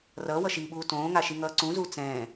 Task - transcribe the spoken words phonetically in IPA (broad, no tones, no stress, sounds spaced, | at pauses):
r ʌː w ʌ ʃ i ɓ uː t õː ŋ a ʃ i ŋ ʌː ǀ ũ z uː t͡s ɛ̃ː